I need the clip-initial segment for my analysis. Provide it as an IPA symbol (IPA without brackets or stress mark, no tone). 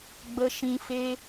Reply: ɡ͡b